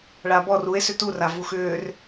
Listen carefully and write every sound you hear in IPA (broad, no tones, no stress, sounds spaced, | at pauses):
ɭ a b ɔ r u e̯ s ʏ t u r a v u x ʏː r